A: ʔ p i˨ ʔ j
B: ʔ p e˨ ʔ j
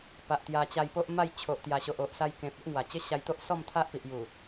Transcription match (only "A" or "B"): A